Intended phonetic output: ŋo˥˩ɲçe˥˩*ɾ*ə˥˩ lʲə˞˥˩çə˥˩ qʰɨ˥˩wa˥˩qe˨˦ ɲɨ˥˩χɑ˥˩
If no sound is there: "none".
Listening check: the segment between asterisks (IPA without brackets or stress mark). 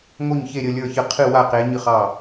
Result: ɾʲ